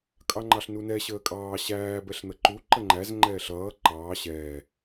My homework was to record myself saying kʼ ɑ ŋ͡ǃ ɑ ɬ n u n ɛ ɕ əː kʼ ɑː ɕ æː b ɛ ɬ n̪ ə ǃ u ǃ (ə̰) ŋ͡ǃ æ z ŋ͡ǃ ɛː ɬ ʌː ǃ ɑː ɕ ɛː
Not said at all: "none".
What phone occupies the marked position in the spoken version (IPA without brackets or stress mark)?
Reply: ə